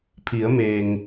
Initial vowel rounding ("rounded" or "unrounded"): unrounded